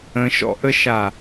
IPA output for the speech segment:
ə̃ ʃ ɔ̰ ʔ ə ʃ a

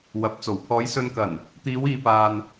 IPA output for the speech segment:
w ɐ˨˥ p̚ t͡s o˨˩ w pʰ ɔː˨˧ j s ɵ˨ n k ɐ˨˩ n | t̪ iː˨˧ w iː˨ p aː˨ n

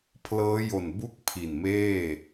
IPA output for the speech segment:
pʰ l ɤː˦˥ j o˨˩ n b u˥˩ k̚ pʰ i˨˩ n m eː˥˩

